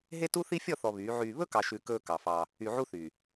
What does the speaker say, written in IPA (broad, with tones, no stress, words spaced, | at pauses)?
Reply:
ɦe˦tu˦θi˦ fʲɔ˦˨θɔ˨ βyː˨˦ ʕyː˨βɵ˦kɑ˨ʃʉ˨ kɵː˦kɑ˨fɑː˦ | y˨ʕu˦θyː˨